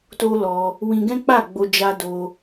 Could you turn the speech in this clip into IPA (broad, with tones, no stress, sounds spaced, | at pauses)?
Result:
t o˦ l ɔ˧ | w ĩ˧ ɡ ɛ̃˦ k͡p a˦˨ ɡ͡b o˧ d͡ʒ a˦ d o˧